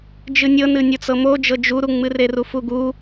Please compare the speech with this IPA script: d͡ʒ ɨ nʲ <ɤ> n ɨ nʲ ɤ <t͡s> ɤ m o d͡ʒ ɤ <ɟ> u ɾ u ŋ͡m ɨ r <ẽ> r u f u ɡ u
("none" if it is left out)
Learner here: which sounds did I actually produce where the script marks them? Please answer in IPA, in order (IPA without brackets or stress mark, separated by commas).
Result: ɤ, t͡s, d͡ʒ, e